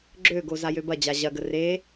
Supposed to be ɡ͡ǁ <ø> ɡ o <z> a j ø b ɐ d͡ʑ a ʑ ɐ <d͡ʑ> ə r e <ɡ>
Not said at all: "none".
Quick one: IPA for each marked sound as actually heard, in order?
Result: ø, z, ɡ, none

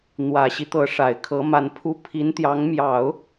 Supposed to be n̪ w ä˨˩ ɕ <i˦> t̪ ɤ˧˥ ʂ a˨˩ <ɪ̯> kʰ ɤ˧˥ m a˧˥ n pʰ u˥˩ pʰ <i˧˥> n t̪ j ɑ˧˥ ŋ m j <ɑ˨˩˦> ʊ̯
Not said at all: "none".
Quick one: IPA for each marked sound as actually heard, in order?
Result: i˦, ɪ̯, i˧˥, ɑ˨˩˦

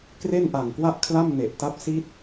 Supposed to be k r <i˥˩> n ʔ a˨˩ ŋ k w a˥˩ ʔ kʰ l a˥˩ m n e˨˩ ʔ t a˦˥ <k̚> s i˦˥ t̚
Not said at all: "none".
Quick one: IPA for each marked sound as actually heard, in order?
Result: e˥˩, p̚

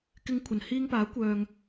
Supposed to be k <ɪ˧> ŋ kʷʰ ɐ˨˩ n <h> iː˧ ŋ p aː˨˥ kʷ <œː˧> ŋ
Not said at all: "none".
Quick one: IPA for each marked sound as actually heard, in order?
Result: ɪ˧, h, œː˨

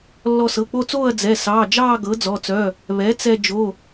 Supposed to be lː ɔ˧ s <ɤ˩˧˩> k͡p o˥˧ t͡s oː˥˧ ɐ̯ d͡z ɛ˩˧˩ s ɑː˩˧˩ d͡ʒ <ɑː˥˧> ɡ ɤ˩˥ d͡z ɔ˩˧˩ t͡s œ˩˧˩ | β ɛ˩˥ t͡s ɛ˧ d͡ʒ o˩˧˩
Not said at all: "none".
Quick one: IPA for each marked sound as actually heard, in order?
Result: ɤ˩˧˩, ɑː˥˧

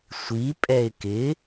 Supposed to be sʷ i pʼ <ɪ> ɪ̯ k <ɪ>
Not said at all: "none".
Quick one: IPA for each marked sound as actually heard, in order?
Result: ɛ, ɪ

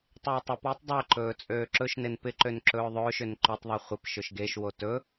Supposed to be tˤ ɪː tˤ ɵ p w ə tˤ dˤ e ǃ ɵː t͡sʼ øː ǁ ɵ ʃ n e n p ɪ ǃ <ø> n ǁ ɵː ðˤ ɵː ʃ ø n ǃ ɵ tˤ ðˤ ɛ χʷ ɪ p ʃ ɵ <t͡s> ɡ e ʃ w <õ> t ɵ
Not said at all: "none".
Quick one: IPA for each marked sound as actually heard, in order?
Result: ø, ʃ, o

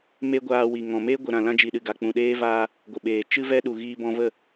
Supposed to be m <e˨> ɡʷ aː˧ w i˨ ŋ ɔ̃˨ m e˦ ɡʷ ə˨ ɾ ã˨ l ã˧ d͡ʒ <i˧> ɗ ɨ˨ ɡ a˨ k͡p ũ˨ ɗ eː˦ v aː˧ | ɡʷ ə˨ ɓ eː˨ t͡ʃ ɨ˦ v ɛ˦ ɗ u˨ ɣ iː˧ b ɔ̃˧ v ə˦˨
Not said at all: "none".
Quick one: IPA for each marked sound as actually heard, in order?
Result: e˦, i˨

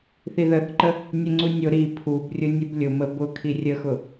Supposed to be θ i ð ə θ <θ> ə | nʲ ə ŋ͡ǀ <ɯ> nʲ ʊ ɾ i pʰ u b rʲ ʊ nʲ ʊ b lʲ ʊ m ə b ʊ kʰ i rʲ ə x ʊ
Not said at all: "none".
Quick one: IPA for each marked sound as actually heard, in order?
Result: ǃ, u

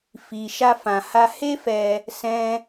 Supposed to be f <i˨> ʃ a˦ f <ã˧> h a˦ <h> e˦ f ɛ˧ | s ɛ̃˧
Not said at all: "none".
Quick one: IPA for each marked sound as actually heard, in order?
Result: i˧, ã˧, h

